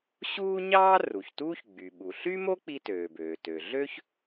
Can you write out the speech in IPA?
ɕ uː˥ ɲ ɑː˥ r u˩ ç t uː˥ ç ɡ͡b y˩ ɓ u˩ ɬ y˥ m o˥ k͡p i˥ t øː˩ b øː˩ t ø˩ ɮ ø˥ ç

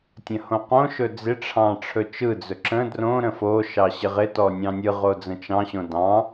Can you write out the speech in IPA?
tʲ ə̃ h õ q õ ʃ ɵ d͡z ɪ ʈ͡ʂʰ ɑ̃ ʈ͡ʂʰ ɵ t͡ʃ ɯ d͡z ɵ ǁ ə̃ d r õ ɾ ə̃ f o ʃ ɑ ɕ ɪ ʁ ɪ t ɔ nʲ ɑ̃ nʲ ɯ ʁ o d͡z ə̃ t͡ʃ ɑ̃ ɕ õ d ɑ̃

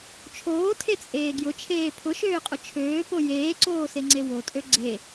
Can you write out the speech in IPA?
t͡ʃʰ oː tʰ e t͡sʼ eː ɡ j ʊ t͡ʃʰ eː pʰ ʊ ʃ øː qʼ ʊ t͡ʃʰ øː p o j eː ǀ oː s e ŋ͡ǀ e w o tʼ ø ɡ͡ǀ e

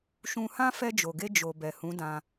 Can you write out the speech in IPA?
ʃ ũ˧ h ã˦ f ɛ˧ d͡ʒ o˨ ɡ e˧ d͡ʒ o˨ b ɛ˨ h ũ˨˦ d ã˧

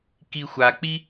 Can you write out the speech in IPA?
k i xʷ a k͡p i

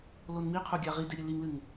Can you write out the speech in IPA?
l o n m i qʰ u ɡʲ a ʁ i d e ɾʲ ɨ l i ŋ l ɨ ŋ

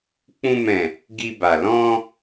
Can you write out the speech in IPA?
k͡p ũ˧ m ɛ̃˨ | ɡ i˧ b a˨ l ɔ̃˧

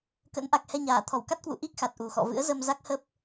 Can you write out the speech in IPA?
k ə̰˧˥ n ʔ a˨˩ k̚ h ɛ˧ ɲ aː˧˩ t̪ʰ ɔ˧˩ w k a˦˥ t̚ k w ṵ˧˨ ʔ i˦˥ k̚ x a˨˩ t̚ ʔ u˨˩ x ɔ̰˧˨ v ɨ̰˧˥ ə̯ z ə˧ m z a˦˥ k̚ h ə˦˥ p̚

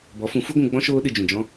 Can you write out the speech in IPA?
b ɔ˨˦ f ũ˨˦ f u˦ ɡʷ ũ˧ ɡ͡b ɔ̃˦ ʃ oː˦ ɗ ɨ˧ d͡ʒ ũ˨ d͡ʒ ɔ̃˦

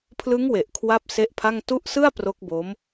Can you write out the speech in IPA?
pʰ l ɯ˦˥ ŋ w e˨˩ ʔ kʰ w a˥˩ p̚ s e˦˥ ʔ pʰ a˥˩ ŋ t u˦˥ ʔ s ɯ˥˩ a̯ p r o˦˥ k̚ b o˦˥ m

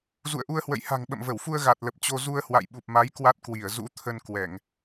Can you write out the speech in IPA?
z ṵ˧˨ ə̯ ʔ u˧ ə̯ h w ə̰˧˨ j h a̤˨˩ ŋ ɓ ə̰˧˨ m v ə˧˩ w f u˧ ə̯ ɣ a˨˩ t̚ l ə˨˩ p̚ t͡ɕ o˧ z u˧ ə̯ h w a̰˧˨ j ɓ u˨˩ p̚ m a˨˦ j k w a˦˥ t̚ k w i˧˩ ə̯ z ṵ˧˥ t̪ʰ ə˧ n k w ɛ˧˩˨ ŋ

